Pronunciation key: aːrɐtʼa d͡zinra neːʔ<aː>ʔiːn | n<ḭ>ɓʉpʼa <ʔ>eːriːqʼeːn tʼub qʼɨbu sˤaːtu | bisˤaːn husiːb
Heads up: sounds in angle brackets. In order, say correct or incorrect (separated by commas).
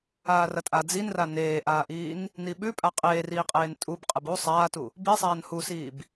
correct, incorrect, incorrect